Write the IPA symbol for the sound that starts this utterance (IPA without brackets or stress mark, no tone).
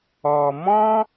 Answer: ɔ